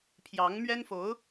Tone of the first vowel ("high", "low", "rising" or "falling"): rising